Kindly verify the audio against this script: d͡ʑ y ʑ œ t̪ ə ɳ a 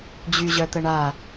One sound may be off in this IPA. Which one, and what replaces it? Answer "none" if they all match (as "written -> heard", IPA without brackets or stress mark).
none